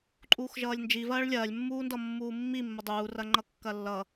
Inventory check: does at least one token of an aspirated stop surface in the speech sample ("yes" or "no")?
no